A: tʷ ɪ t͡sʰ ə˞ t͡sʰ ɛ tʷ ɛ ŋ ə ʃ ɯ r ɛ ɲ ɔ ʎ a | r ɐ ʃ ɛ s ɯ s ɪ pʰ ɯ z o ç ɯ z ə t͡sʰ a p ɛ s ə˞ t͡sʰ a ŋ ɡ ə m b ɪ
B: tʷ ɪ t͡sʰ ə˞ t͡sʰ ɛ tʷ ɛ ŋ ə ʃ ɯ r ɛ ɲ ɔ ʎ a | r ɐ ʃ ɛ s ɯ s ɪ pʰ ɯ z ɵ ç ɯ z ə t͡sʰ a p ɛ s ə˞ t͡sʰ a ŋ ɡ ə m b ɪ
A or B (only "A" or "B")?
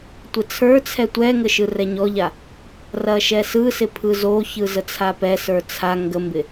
A